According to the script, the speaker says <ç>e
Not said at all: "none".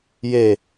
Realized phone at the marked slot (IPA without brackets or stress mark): j